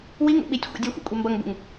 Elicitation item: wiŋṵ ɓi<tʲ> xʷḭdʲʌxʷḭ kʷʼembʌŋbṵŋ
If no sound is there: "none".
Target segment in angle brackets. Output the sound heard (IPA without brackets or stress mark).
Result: tʲ